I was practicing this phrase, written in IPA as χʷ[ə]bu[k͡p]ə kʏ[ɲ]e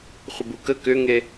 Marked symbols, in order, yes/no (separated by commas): yes, no, no